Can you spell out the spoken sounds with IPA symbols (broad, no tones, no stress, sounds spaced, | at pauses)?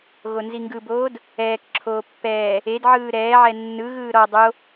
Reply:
ɣ o n z i ŋ ɡ ɯ b oː d | ɛː k ǁʰ oː pː ɛː | e d ʕ ɯː ɾ ɛː ʕ ɛ nː ɯ ɣ ɯː ɾ ɔ dˤ o